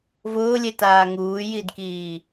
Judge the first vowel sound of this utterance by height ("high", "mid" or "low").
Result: high